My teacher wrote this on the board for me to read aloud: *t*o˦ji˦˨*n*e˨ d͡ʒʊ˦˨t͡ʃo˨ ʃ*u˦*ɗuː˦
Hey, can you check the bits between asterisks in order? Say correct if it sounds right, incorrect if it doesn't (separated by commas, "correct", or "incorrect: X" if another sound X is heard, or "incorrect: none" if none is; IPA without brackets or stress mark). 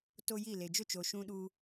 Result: correct, incorrect: l, incorrect: ũ˦